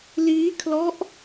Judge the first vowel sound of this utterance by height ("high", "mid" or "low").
high